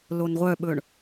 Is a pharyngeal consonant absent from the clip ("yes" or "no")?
yes